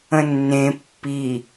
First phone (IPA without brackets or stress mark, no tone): ə̃